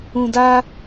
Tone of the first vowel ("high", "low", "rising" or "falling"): low